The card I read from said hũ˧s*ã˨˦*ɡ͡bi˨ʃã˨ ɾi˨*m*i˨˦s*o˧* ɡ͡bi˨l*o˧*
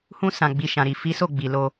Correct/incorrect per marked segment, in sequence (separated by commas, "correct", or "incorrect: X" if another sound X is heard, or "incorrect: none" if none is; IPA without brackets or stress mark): incorrect: ã˨, incorrect: f, incorrect: o˦˨, correct